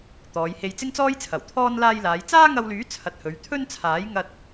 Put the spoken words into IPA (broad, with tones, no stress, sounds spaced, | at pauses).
t̪ ɔː˨˧ j h e˧ j t͡s ɪ˥ ŋ t͡s ɔː˥ j t͡sʰ ɐ˨˩ w t̪ʰ ɔː˥ n l aː˧ j l aː˨˧ j t͡s aː˥ ŋ ɐ˧ w l yː˨˥ t͡sʰ ɐ˨ t̚ h ɵ˨˧ ɥ t̪ʰ ɵ˥ n t͡sʰ aː˨˥ j ŋ ɐ˧ t̚